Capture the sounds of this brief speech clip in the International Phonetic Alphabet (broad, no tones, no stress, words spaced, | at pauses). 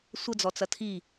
sʷəd͡zɔt͡sɐ tʰi